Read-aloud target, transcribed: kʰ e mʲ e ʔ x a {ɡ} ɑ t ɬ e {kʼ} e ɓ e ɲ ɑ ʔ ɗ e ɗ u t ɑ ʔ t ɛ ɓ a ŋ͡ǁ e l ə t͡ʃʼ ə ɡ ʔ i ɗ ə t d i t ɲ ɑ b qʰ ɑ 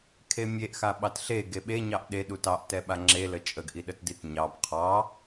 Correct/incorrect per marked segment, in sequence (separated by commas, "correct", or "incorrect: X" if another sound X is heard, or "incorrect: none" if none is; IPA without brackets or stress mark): incorrect: ɓ, incorrect: ɡ